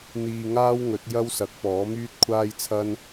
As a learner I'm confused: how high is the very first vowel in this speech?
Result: high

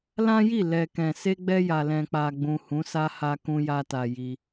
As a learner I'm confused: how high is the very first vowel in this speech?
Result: low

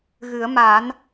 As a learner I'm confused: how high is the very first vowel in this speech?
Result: high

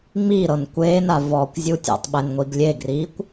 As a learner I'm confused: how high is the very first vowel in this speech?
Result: high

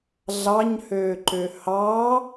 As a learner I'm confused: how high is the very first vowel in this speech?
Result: low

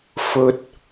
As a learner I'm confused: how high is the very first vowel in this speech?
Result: mid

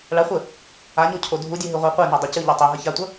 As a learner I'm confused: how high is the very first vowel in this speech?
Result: low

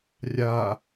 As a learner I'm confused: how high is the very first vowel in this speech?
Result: low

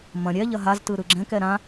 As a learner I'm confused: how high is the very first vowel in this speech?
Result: low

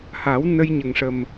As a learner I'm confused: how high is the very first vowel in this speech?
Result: low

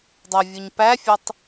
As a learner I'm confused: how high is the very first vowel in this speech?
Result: mid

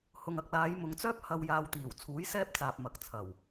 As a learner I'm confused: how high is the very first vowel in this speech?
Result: high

